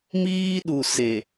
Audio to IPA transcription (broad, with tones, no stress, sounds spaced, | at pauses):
m iː˦ ɗ u˨ s e˨